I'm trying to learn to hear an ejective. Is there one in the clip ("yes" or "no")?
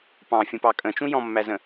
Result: yes